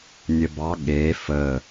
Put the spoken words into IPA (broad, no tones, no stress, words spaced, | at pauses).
nʲəbɑ ɠe fə